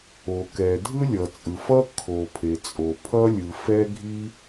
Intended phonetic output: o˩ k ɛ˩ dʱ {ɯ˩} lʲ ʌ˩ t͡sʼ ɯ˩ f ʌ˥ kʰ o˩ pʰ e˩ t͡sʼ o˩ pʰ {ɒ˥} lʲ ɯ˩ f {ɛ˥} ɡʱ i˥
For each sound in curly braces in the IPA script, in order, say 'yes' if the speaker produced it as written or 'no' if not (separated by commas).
no, no, yes